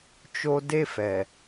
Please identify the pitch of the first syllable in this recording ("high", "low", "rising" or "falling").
high